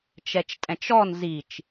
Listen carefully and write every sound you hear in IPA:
t͡ʃ ɛ t͡ʃ tʼ ɛ̃ t͡ʃ ɔ n z i t͡ʃ

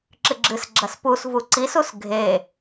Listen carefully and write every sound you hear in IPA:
ǁ ɨ ɡ͡ǁ ɨ s ɡ͡ǁ ɐ s p u s v u ǀ i s u s ɡʱ e

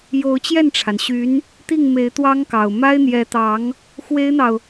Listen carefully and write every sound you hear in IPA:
j o˧˥ ʊ̯ t͡ɕ j ɛ˥˩ n ʈ͡ʂʰ a˩ n ɕ y˧˥ n | t̪ i˥˩ ŋ m e˧˥ ɪ̯ t̪ w ɑ˥ ŋ k ɑ˨˩ ʊ̯ m a˥ ɪ̯ n̪ j ɛ˧˥ t̪ ɑ˧˥ ŋ | x w e˥ ɪ̯ n̪ ɑ˨ ʊ̯

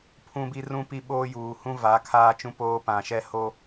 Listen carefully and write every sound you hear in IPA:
pʰ ũ˦ b i˦ r ũ˦ p i˦ ɓ oː˦ j uː˨ h ũ˦ v a˨˦ kʰ aː˦ t͡ʃ ũ˦ p oː˦ p ã˨ ʃ ɛ˦ h o˦

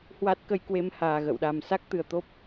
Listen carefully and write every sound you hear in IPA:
h w a˦˥ t̚ k ə˧ j k w e˧ m h aː˨˩ ɣ ə̰˧˨ w ɗ a˨˩ m s a˦˥ k̚ t̪ ɨ˨˩ ə̯ t̪ o˦˥ p̚

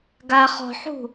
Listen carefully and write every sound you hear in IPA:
ɡ a χ ɔ̤ ħ ṳ

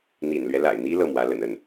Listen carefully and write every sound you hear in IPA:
n̪ ḭ˨˩ n l ɥ ɛ˦ l a̰˨˩ ɪ̯ n̪ i˥ l ɤ˥˩ m w ä˧˥ l ə̰˨˩ n ə˥˩ n

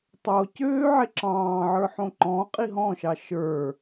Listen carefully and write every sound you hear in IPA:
tˤ o c øː ʕ e ǁ ɑ̃ː ʕ ə˞ ħ õ ǃ ɔ̃ qʼ i ɦ ɔ̃ ʃ ɑ ʃ ə˞

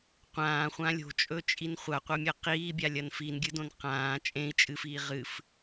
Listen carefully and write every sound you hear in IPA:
qʷ ãː χʷ ã lʲ o̤ t͡ʃʼ ɵ t͡ʃʼ i n χʷ a qʷ ɐ mʲ ɐ q iː bʲ a lʲ ɐ n f i n ɡʲ ɨ d õ n q ãː t͡ʃʼ ẽ i̯ t͡ʃʼ ɨ f iː ʁ ɨ f

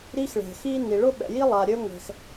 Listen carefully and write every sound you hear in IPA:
ɾ i˥ x ɭ ɛ̤˩ x i˥ n i˩ ɭ ʊ˥ ɓ ɛ̰˩ j i˥ lˠ a˩ ɾʲ ø˥ ŋʷ ɛ̤˩ x

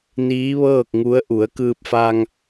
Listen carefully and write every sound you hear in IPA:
n iː˧˥ ʋ ɤː˥˨ k̚ ŋ u˧˥ ə̯ ʔ u˩˧ ə̯ k ɯː˧ p̚ f a˧ ŋ

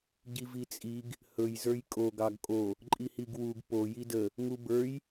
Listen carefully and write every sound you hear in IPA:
ɟ i v i t͡sʼ i ɡ | h ɵ j z ə˞ j kʼ o ɡ ɑ ɡ kʼ o | ǃʼ i h i ɡ w u ɡ p o j i d ə | ŋ u b ə˞ j

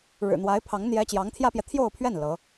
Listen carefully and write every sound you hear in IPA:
ɻ ɻ̩˨˩ n̪ w a˧˥ ɪ̯ pʰ ɑ˧˥ ŋ n̪ j ɛ˥ t͡ɕ j ɑ˧˥ ŋ t̪ʰ j ä˥ p j ɛ˨ t̪ʰ j o˥˧ ʊ̯ pʰ ɥ ɛ˥˩ n l ɤ˧˥

